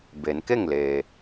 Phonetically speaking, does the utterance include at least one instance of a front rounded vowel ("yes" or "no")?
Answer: no